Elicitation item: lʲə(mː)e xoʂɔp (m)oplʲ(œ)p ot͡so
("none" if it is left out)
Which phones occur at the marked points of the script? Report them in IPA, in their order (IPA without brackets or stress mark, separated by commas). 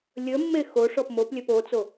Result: mː, m, œ